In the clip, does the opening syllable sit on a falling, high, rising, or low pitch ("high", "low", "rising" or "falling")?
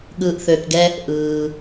low